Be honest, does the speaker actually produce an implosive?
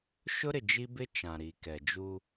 no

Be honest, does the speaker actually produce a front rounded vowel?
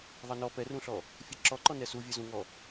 no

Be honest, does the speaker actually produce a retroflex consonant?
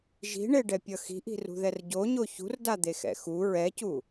yes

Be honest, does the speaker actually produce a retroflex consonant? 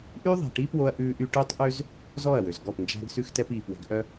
yes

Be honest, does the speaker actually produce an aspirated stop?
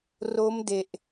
no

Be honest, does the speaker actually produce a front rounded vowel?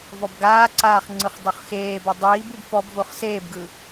no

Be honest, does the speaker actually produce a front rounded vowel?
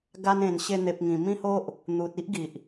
no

